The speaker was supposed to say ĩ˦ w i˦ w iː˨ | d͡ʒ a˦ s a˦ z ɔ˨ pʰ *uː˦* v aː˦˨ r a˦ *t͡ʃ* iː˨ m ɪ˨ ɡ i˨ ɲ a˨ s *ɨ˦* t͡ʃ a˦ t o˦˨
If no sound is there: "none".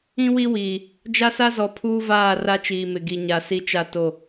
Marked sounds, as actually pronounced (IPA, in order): uː˦, t͡ʃ, i˦

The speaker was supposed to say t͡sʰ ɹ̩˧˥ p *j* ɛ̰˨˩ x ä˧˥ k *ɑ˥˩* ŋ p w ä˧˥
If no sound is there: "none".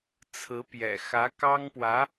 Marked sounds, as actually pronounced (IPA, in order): j, ɑ˥

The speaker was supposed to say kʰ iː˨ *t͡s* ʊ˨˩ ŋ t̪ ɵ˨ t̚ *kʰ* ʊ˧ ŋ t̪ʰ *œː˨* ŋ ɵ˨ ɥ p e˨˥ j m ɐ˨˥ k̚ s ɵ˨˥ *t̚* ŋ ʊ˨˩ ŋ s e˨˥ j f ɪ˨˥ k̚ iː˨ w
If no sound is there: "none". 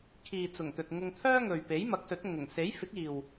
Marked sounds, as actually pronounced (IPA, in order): t͡s, ŋ, œː˥, t̚

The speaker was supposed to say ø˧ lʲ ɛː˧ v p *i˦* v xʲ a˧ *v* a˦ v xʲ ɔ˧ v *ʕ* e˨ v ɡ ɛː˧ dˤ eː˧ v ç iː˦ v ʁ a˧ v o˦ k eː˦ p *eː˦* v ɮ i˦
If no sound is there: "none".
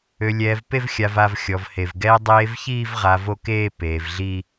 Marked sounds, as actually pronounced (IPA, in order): e˦, v, h, eː˧

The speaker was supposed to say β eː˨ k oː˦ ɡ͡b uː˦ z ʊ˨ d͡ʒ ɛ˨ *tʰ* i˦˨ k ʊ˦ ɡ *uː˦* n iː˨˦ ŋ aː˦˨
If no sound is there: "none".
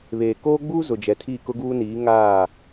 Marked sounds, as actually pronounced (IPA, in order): tʰ, uː˦

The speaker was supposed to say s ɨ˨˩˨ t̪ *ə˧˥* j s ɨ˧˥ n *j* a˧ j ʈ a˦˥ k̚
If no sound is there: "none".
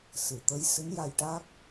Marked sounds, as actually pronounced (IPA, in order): ə˧˥, j

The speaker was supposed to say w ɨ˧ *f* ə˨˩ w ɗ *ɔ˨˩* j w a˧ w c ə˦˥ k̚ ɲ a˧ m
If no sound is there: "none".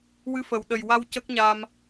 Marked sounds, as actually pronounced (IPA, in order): f, ə˨˩

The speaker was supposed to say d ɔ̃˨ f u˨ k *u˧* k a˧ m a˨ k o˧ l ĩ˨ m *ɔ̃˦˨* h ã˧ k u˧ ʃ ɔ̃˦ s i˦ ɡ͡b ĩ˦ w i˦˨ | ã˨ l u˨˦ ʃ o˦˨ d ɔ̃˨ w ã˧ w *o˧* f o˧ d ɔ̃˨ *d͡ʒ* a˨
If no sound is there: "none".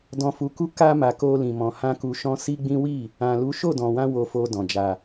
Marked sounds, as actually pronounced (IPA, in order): u˧, ɔ̃˨, o˧, d͡ʒ

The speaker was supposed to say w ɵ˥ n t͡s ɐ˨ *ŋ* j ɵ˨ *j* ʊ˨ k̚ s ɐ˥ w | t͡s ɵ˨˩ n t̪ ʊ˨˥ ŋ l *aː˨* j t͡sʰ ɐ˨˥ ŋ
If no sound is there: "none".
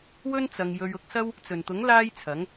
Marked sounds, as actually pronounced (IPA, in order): ŋ, ɥ, aː˥

